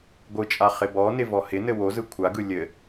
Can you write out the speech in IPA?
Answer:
ɡʷ ɯ t͡ʃʼ a χ ɪ b ɔ n ɪ v ɔ h ɪ n ɘ w o z ɯ kʷʰ a ɡ ɯ lʲ ɘ

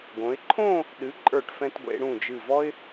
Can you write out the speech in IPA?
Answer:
ɡ õ˩˧ ɪ̯ ǃʰ õ˥˧ | ɗ ɨ˩˧ ǃʼ ə˞˧˩ ʈ f ɛ̃˧ t ɡʷ ḛ˩˧ ɽ ũ˧˩ d͡ʒ ɨ˧˩ v ɔ˥ ɪ̯

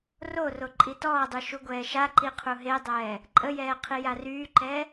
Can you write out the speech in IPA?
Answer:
r o r o ǃʼ i t ɔː dˤ y ʃ u ɡʷ ɛː ʃ a ǃ i qʰ u ɦ e dˤ ɛː | ǃʼ ə j ɛː qʰ i j a r yː ǃ ɛː

